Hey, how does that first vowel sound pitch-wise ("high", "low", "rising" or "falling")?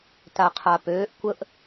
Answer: low